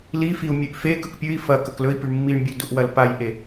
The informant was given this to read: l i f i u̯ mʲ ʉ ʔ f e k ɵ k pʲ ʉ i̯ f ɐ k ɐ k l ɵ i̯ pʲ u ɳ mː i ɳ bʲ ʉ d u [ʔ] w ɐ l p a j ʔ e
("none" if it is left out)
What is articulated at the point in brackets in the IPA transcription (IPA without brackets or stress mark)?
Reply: ʔ